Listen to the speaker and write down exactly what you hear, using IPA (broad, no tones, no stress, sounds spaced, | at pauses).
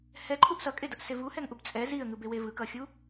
h ɛ ǃʰ u ʔ s ʌ kʼ e d ʌ ʔ s e v u h ɛ ŋ ʔ u b t͡sʼ ɛ z i ə̯ ŋ ɯ b e w e v ɯ k ʌ xʲ u